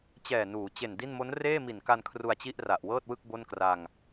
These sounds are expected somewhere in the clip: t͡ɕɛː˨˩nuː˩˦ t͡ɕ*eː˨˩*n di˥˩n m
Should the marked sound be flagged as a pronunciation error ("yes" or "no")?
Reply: yes